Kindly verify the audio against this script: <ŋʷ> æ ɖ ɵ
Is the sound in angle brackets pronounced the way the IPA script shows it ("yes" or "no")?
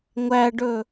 yes